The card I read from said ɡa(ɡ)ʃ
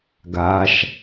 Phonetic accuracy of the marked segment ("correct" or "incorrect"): incorrect